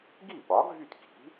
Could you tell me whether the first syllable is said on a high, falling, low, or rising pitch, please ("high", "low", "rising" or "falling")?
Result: falling